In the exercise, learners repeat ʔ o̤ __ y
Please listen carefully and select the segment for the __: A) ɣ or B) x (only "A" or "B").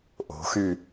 B